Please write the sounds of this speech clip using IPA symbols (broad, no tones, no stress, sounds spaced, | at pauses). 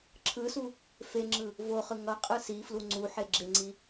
ǁʰ ɯ s u | f e ŋ͡ǁ ɯ | v o χ ɯ ŋ ʌ qʼ ɯ s i f l u ŋ͡ǀ u ħ e ɡ͡ǁ e ŋ͡ǀ i